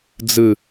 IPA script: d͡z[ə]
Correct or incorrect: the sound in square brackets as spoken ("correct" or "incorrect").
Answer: incorrect